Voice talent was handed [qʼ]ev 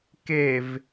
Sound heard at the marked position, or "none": k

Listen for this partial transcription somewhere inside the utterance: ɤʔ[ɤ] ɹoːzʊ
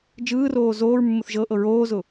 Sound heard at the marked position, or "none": ɤ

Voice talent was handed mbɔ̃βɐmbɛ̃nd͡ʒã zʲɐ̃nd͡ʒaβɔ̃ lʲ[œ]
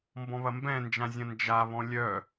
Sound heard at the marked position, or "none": œ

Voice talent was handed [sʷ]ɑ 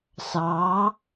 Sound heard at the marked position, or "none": s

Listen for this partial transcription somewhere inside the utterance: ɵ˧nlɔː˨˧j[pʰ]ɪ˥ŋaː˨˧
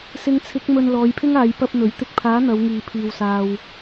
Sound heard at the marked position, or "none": pʰ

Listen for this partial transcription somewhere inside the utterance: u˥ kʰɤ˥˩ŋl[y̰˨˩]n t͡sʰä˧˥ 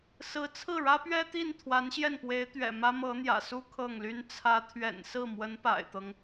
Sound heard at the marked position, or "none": y˥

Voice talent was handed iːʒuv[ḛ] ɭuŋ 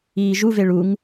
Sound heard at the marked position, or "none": e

